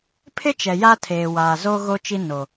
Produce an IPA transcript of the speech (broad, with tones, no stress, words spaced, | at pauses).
pʰɪ˦t͡ʃɛ˨ ja˦tʰeː˨waː˨zo˦ ɣo˦t͡ʃi˦no˨